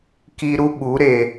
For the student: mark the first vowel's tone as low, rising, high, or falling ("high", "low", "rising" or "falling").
high